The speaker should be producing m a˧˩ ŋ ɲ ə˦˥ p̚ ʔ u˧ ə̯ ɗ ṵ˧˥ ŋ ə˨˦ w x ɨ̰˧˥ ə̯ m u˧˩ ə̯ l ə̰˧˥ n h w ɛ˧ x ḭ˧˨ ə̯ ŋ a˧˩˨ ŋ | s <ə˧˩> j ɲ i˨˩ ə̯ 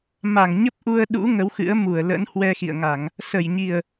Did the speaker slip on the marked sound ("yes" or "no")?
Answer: no